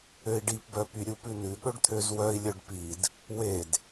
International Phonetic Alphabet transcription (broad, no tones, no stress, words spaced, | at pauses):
øi̯ɖipbœpy ɾʲupʉnʉ ɠɵɖt̪ʰøzwœi̯lʲœɖ pid | wed